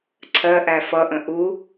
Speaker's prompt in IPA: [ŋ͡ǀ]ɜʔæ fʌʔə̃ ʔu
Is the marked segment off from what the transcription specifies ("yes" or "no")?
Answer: yes